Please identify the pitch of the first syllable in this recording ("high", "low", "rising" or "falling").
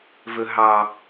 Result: low